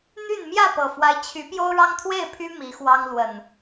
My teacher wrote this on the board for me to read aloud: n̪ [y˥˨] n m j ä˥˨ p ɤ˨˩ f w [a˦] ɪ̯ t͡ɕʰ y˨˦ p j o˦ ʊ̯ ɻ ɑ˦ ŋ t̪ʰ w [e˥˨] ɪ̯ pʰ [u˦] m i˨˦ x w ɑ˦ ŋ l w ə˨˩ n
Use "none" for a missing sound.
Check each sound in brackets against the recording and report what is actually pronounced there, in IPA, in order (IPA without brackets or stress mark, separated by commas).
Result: y˥˨, a˦, e˥˨, y˦